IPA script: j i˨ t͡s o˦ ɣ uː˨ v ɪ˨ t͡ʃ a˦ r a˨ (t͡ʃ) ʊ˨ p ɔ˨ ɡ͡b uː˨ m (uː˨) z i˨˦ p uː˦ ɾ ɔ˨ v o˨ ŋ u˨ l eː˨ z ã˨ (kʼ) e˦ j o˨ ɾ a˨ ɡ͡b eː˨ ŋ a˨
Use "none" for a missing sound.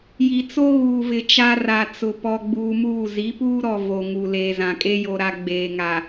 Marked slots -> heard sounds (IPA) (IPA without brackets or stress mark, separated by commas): t͡s, uː˦˨, kʼ